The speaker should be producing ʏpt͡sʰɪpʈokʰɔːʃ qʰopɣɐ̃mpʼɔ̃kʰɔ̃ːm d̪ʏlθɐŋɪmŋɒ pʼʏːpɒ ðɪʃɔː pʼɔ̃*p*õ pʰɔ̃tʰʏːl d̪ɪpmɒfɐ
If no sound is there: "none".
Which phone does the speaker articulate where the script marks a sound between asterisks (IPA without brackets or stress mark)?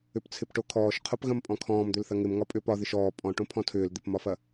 ʈ